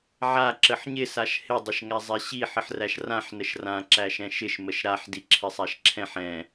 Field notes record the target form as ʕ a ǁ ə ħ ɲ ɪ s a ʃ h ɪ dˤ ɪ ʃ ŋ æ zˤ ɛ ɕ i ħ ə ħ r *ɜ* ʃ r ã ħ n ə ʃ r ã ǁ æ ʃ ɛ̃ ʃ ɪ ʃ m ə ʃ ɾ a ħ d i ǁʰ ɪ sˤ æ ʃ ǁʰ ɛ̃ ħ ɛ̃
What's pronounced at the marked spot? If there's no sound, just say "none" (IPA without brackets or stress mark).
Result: æ